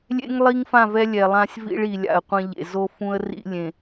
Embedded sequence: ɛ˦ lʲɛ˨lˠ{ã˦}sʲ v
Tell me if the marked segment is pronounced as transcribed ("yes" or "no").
yes